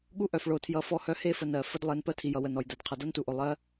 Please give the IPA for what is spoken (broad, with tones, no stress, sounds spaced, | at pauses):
ɠ u˦ ʔ œ˨ f ɭ o˨ tʰ j ʌ˨˦ f ɔ˦ h œ˦ h e˦˨ f ə˨ n ɜ˨ f ə˦ d lˠ e˨˦ n p ɜ˦ tʰ i˨ j ʌ˨ w ə˨ n ɔ˨ j d ɜ˨ d qʰ ʌ˨ d ʌ˦ n t u˨ ʔ o˨ lˠ ɜ˨˦